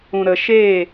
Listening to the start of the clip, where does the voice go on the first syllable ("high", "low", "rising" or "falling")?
low